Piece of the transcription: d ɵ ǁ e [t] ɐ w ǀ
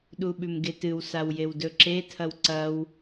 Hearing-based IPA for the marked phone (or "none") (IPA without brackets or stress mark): tʰ